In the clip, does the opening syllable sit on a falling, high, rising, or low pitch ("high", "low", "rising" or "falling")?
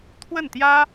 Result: falling